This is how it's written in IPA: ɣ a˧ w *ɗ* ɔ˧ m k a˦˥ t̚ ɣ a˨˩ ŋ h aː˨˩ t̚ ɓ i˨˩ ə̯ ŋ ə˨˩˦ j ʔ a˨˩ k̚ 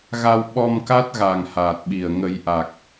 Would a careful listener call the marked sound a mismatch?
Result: yes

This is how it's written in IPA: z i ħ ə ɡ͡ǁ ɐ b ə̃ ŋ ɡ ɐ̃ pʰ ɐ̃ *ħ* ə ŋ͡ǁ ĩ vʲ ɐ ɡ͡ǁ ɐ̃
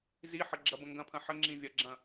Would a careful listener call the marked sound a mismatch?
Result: no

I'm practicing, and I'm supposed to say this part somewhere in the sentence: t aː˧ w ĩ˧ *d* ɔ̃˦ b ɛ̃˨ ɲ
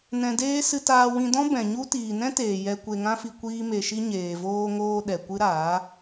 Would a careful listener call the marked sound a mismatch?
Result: no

